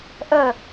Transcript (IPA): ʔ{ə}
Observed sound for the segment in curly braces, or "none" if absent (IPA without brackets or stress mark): ə